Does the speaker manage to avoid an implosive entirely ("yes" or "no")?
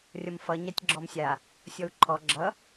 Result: yes